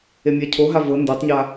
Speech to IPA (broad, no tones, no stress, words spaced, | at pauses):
emʲacʰoɦa vɤ ndotˤɲa